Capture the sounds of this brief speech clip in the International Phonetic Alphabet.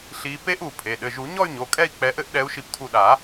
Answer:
ɬ i˨˦ p e˦˥ ʔ u˧˩ pʰ e˩˧˩ ɗ ɘ˩˧˩ ʒ u˨˩˦ ɲ ɔ˥˧ y̯ ɲ o˩˧˩ kʼ ɛ˥˧ i̯ k͡p ɛ˨˦ ʔ ɘ˦˥ ʔ ɗ ɛ˨˦ u̯ ʃ i˧˩ p tʰ u˧˩ ɗ a˨˩˦

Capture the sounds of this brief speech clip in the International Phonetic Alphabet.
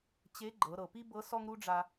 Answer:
t͡ɕ e˧˥ ɡ͡ǃ ɤ˩˧ ɾ ɤ˩ p i˥ b ɤ˧˥ s ɔ˥ ŋ ɾ u˥ ɖ͡ʐ a˧

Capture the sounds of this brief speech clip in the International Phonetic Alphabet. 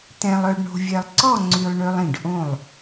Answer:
t̪ ɛ̃˧ lˠ œ˧ ɖ ɳ o̤˧ vʲ ɛ˧ lˠ ǀ ɔ˥˧ ŋ͡ǀ y˧ lˠ ɳ ø˧ lˠ ĩ˧˩ ɖ ʔ õ˧˩ lˠ

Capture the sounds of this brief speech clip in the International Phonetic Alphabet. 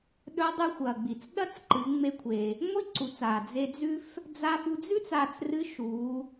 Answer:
ɗ ɵ˧˥ dˤ ʉ˧ xʷ ɐː˩ ɡ͡b i˩ t͡s ɗ ɐ˥ t͡s ǃ ɨ˩˧ ŋ͡m e˧ kʷʰ e˩ | ŋʷ i˥ ǀ u˩˧ t͡s aː˩ d͡z e˧ d͡z ʉ˥ f | d͡z aː˧ f u˧ d͡z ʉ˥ t͡s aː˧ t͡s r ɨ˧˥ ʃ uː˩˧

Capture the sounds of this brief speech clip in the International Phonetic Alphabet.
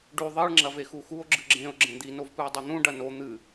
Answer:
ɖ ʉ ðˤ i ɭ ŋ͡ǁ ɐ v e x u x u o̯ ɡ͡ǁ ɨ ɡ͡ǁ ẽ o̯ ɡ͡ǁ ẽ d̪ i n o v p ɨ e̯ dˤ ʉ n̪ ũ ɖ ɐ n o n̪ ɨ

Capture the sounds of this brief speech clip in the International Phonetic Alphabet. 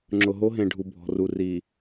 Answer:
ŋ͡ǁ ʊ˨ ɦ o˦ ɦ ẽ˨ ɖʱ u˨ bʱ ɔ̤˨ r u˨ r i˨

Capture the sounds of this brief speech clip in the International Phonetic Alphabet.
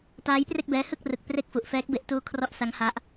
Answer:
t aː˦˥ j p r e˥˩ k̚ b ɛː˦˥ h ɯ˥˩ k̚ r ɯ˨˩ k̚ p r e˥˩ k̚ f u˨˩ ʔ f ɛː˦˥ k̚ b e˦˥ ʔ t uː˦˥ kʰ r ɔ˦˥ ʔ s a˦˥ ŋ h a˦˥ ʔ

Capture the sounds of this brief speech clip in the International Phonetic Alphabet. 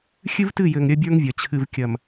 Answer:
xʲ ɨ˦ v t ɨ˦˨ j ɘ˨ ŋ ɾʲ ɐ˦ bʲ ə˞˦ ŋ vʲ ɐ˨ t͡ɕʰ ɨ˨ v kʲ ɐ˨ m

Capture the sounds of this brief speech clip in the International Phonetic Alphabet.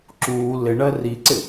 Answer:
ǁ uː l ɪ ɳ ɜ r i ǀ ɪ

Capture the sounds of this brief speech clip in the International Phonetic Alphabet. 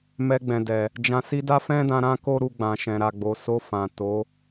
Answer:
m ɛ˧ ɡ͡b ɛ̃˨ d ɛ˨ | d͡ʒ ã˨ s i˧ d a˦ f ɛ̃˦ d ã˧ ɾ ã˦ k o˦ ɾ u˧ ɡ͡b ã˨ ʃ ɛ̃˨ ɾ a˨ ɡ͡b o˨ s o˧ f ã˨ t o˨˦

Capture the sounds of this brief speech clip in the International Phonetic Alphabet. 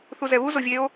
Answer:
θ u z ɛ β u z o vʲ e o̯

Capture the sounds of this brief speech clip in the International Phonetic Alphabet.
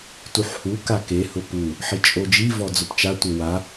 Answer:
t u ħ h u k a k e h ʊ p u | ħ i t͡ʃʼ o d͡ʒ i v ɔ d͡z ʊ p t͡ʃ a tʷ e w a

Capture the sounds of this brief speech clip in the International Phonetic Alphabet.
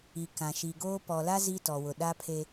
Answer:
i˨ k ã˨ ʃ i˨ ɡ oː˦ p ɔ˨ l a˦ z i˦ t ɔ˨ w ʊ˨ ɗ a˦ pʰ e˦

